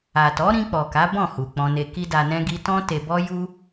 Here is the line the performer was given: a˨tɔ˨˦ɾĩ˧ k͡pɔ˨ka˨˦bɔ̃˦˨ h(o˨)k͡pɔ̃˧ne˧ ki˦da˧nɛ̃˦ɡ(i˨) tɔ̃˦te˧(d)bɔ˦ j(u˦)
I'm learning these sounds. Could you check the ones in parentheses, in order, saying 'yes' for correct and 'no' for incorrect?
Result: no, no, no, yes

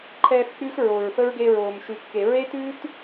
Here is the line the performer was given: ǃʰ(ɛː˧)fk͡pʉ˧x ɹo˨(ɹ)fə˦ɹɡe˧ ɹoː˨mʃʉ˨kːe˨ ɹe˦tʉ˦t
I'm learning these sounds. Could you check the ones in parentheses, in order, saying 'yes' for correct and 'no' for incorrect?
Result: yes, yes

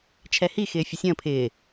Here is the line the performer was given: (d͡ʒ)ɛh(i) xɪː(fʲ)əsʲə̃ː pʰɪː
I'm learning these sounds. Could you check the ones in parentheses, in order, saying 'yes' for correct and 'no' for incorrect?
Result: no, yes, yes

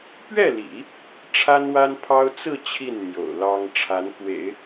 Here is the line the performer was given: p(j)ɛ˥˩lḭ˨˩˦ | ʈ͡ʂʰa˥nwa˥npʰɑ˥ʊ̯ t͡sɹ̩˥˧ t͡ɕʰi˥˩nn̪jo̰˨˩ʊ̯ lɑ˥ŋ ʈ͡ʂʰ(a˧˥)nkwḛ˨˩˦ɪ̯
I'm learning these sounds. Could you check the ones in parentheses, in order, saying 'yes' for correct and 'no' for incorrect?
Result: no, yes

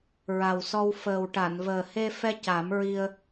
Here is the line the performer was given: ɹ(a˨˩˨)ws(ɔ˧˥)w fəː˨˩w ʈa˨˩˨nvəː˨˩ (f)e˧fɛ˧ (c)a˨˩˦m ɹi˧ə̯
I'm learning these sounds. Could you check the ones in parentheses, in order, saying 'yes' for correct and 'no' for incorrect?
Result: no, no, no, yes

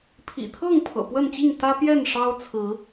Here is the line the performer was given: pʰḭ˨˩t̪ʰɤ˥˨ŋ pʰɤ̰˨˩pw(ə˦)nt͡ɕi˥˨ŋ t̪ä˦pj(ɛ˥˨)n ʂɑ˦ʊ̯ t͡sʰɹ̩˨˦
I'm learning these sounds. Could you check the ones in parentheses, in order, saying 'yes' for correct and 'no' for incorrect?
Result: no, yes

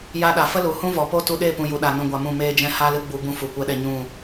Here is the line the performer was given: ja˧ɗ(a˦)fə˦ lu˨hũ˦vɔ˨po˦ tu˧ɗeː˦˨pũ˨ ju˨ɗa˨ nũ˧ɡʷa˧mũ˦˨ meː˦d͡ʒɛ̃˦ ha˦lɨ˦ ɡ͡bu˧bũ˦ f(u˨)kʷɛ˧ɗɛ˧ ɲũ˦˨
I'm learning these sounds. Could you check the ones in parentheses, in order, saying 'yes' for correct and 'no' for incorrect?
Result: no, yes

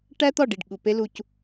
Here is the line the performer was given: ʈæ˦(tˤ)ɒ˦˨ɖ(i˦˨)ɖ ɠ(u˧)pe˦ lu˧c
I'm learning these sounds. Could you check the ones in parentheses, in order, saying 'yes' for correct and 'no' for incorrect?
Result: no, yes, no

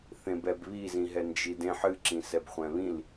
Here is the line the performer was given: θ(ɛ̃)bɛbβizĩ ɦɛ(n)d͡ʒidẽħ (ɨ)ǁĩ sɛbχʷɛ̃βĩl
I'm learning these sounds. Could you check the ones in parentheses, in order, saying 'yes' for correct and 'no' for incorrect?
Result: no, yes, yes

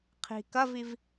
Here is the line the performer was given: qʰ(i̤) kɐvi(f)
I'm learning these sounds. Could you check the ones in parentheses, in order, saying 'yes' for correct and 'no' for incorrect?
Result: yes, no

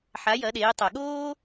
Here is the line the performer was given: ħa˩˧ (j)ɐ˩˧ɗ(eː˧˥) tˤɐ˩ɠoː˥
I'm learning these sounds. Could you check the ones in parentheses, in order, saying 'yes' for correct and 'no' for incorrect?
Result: yes, no

